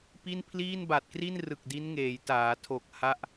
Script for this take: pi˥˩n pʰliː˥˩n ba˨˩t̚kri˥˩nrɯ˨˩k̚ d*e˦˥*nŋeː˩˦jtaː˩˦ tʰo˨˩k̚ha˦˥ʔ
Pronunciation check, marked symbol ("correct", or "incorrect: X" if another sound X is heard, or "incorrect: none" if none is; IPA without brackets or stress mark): incorrect: i˦˥